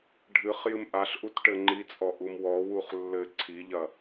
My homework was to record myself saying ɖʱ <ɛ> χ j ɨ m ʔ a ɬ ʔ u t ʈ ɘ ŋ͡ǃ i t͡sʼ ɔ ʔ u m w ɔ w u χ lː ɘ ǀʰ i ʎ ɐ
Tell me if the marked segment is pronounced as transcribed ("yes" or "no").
no